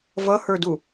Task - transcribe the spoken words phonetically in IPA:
v ʌ h ə˞ d u

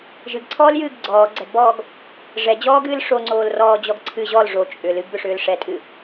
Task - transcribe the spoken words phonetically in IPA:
ʒ ɨ ɡ ǀʰ ɔː l j ɨː ɡ ɡ͡ǀ ɔː ɡ͡ǀ ɛ ɡ b ɔː ɡ | ʐ ɛ d͡ʑ ɔː ɡ ɨː l ʂ o ŋ͡ǀ oː l r ɔː d͡ʑ ɔ ɡ ǀʰ ɨ ʑ ɔ l ʐ o t͡ʃʼ ʏ l ɨ ɡ b ʏ ʂ ʏː l ʂ ɛ tʼ ɨ

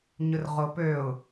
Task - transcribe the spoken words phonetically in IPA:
ɲ ʊ r ʁ o p ø ʊ̯

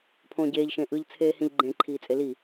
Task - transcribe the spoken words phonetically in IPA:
pʰ õː ɟ eː ʎ ʃ ẽ ʔ ɯ ʎ t͡sʰ eː h ĩ ʎ ɡ͡ǃ ẽ ǃʰ iː t͡sʼ e l i

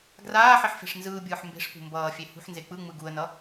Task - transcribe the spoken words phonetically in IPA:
ɡ r aː ħ i ħ f e̤ ʂ n z ɯː bʲ ɯː ħ m b e̤ ʂ p ṳ m b ʌː fʲ e h ṳ ħ n z e k͡p ɯ ŋ͡m ɯ ɡ u ə̯ n ʌ

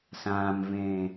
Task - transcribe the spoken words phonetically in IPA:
s ãː m v ẽː

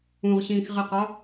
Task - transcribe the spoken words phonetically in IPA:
ũ ʁ ɕ ĩː x ʁ i q ɒ

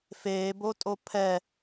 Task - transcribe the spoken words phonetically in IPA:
f eː b o tʼ o pʰ ɛ

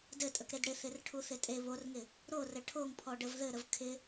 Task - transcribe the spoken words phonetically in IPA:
d ɘ tʼ ə k ɾ e d ɽ ɪ θ ɪ r ʈʰ u θ ɪ tʼ e β o r ŋ ɪ | ɾ o r ɘ ʈʰ o ŋ pʰ ɔ ɖ ə v ð ɘ ɾ ə v kʰ ɪ

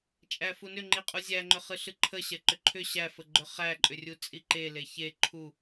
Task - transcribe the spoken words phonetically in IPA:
t͡ʃʼ æ f u n ʏ ŋ͡ǃ i qʼ u zʲ æ ŋ͡ǃ ʏ χ ɨ ɬ ɨ ǃʰ ə ɕ ɛ ǃ ʏ ǃʰ ʏ ɕ æ f ə ɡ͡ǃ ʏ χ æ ǃʼ ʏ rʲ u t͡sʼ i ǃ e l e ç e ǃʰ u

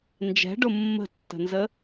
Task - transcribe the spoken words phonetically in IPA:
n d͡ʒ ɛ̤ ɖ ʊ mː ə̤ tː ə̤ n z ə

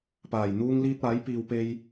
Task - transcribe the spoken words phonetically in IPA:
p aː˨˩ j n̪ uː˥ ŋ l iː˧ t̚ aː˨˥ j p iː˨ w p e˧ j

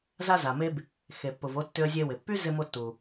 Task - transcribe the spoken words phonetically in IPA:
z a˧ z a˩ m e˧ b | x e˩ pː ʊ˩ v o˧ tː ʏ˧ ə̯ zʲ e˧ w ɪ˩ pː y˥ z ɪ˧ m o˧ tː u˩

